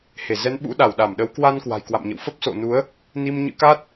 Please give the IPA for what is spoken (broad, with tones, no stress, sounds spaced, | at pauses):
h e˧˩ z ɛ˨˦ n ɓ ṵ˧˥ ɗ a˧˩ w ɗ a˧˩ m ɗ ə˨˦ w k w a˧ n k w a̤˨˩ j k w a̰˧˨ m ɲ ə̰˧˨ w f ə˦˥ p̚ s o̰˧˨ n u˨˦ ə̯ | n i˧ m ɲ ɨ̰˧˥ k a˦˥ t̚